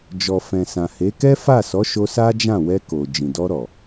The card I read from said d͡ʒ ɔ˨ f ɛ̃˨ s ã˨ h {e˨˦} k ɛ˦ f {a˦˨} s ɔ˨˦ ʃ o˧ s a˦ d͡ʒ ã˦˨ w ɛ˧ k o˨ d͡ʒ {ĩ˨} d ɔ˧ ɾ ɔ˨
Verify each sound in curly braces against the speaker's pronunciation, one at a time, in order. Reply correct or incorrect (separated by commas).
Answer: correct, correct, correct